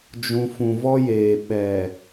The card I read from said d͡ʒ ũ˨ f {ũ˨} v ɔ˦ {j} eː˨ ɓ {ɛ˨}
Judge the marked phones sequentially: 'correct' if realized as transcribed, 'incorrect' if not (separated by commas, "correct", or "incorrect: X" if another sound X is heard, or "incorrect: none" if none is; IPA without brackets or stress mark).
correct, correct, correct